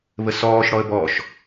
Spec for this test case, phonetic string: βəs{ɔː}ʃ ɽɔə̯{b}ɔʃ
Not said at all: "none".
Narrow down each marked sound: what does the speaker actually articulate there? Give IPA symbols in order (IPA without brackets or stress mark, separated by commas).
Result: ɔː, b